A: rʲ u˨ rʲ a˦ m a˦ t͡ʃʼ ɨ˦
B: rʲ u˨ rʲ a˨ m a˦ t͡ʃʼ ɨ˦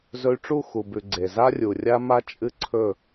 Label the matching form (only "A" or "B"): A